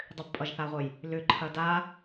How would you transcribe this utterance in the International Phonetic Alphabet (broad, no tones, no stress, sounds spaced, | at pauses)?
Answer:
dˤ ʏ b pʼ ʌ ʒ θ a ʁʷ ə j | l ʏ ǃʰ ɐ d a